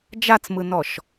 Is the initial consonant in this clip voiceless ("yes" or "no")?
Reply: no